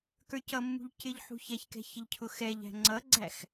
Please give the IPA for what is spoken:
kə˞cʌmːṳʎ cɪʎħṳçɛçkɛ̤ çɪʎcʰʊxɛʎæ̤ ŋ͡ǀʌɡ͡ǀæx

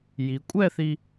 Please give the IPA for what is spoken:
ji˩˧kʷʼɛ˥˧θi˧

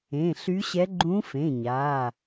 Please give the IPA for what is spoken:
ẽ˩˧˩ɬy˧˥ɕɛ˧˥ ɡ͡ǃũ˧˥fẽ˩˧˩ɲa˩˧˩

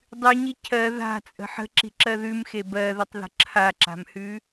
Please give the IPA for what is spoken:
dˤʉɲi cʰɜ ða̤t͡sʼə̤ ħə̤ǁi̤ǁɜ ðʉmxe bɜðətˤðə̤ ǁʰaǁa̤mhʉ

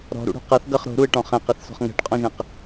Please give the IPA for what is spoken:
ɾɔ̤ɾṵɽo̤ qʌθ ɡʌχ ɾo̤ɾuɪ̯ʈɔ̃ χɛ̃qɛθsɔ̤χ ŋɛ̤ʈqʼɔ̃ʒɛ̃q

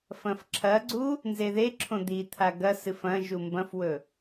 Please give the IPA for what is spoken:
fɐ̃fǁʰɐɡ͡ǀu | nzeðeǁʰõ d̪it̪ʰa ɡɐsɨ fɐ̃ ʒumbɐ̃fwɵ

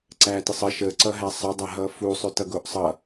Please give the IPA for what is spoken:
ǀætɪsˤə ʃə ǀʌɦæsˤə dˤæɦʌfu sˤʏtʌɡoʔsˤʌ

